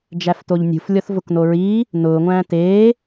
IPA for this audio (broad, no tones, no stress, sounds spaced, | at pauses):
d͡ʒ æ f t o ʎ nʲ ṳ f lʲ ɔ θ v ʊ k n o ɹ iː | n ʊː ŋʷ æ̃ː t eː